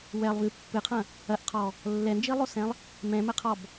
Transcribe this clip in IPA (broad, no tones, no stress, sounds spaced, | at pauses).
w ɛ lˠ v ɨ pː ɨ qʰ ɐ̃ | ɐ ʔ qʰ ɔ | lː ɛ n d͡ʒ i lˠ o s ɛ̃ lˠ | m ɛ̃ m ɘ qʰ ɔ b